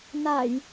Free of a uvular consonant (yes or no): yes